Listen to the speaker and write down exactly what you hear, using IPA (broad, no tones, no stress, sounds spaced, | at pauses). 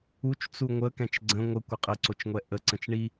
u t͡ʃ t͡s u ŋʷ ə k ɛ̃ t͡ʃ ɡ͡ǀ ə̃ ŋʷ ə kʷ ə qʼ ɘ ǀ o t͡ʃ ŋʷ ɛ ʔ ə ǀ ə̃ t͡ʃ ɳ i